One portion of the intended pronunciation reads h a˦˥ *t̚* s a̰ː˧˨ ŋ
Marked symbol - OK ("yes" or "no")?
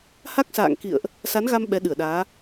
no